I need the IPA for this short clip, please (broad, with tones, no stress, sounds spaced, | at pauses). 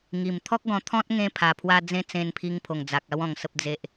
ŋ i˨˩ m t̪ʰ ɔ˦ k̚ ɡ ɔ̃˧ t̪ʰ ɔ̃˦ t̚ ŋ ẽ˧ pʰ a˨˩ pʰ w a˧ d͡z ẽ˧ t͡s ẽ˧ n pʰ i˧ ŋ pʰ o˨˩ ŋ d͡z a˨ k̚ a˧ w ɔ̃˨˩ ŋ s ə˨ p̚ d͡z e˨ ʔ